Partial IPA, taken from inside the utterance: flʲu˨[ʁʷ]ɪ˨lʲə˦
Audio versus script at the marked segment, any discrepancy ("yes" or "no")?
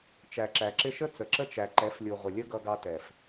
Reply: no